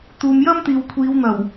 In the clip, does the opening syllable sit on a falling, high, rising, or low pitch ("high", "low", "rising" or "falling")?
low